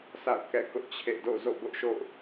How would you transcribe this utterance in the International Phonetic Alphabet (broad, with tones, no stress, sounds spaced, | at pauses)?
s a̰˦˨ ʊ̯ k ɛ̰˦˨ k ʊ˦ ʔ t͡ɕʰ ḛ˦˨ d o̰˦˨ z o̰˦˨ b ʊ˦ ʔ ʃ o̰˦˨ ʊ̯